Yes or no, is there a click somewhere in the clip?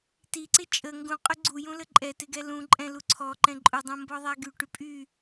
yes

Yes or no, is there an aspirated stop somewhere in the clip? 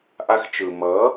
no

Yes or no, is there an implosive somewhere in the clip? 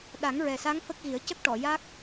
yes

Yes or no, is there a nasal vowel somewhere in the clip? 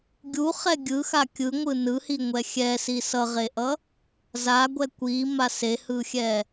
no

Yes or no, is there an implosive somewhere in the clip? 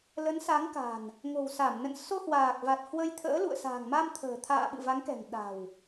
yes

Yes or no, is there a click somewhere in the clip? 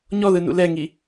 no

